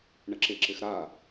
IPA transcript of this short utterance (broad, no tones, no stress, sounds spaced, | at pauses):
ɳ ə ǁ ɪ ǁ ɪ x ɾ a